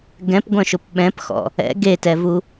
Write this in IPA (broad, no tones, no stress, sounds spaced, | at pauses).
ɡ ɛ̃ p ɡʷ œ̃ ʃ ʊ p ɓ ɛ̃ p x ɔ̰ | ɛ̰ ɡ e t ɛ v u